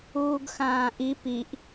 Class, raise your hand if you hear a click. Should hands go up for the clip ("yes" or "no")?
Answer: no